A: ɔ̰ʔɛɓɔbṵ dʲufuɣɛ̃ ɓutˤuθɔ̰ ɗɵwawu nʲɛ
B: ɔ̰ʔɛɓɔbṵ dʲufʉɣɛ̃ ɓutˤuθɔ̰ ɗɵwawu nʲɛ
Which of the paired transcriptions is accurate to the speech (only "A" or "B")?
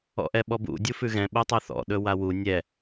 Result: B